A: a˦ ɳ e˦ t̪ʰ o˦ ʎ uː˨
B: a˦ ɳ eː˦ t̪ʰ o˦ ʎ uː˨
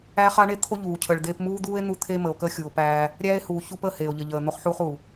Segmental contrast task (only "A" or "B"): A